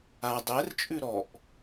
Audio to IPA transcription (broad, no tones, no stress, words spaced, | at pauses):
a dˤɛrt͡ʃʼʉ ɾɔʔ